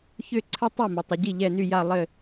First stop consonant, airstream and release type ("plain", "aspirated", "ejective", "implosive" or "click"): click